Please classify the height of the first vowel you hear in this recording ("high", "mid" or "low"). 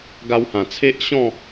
low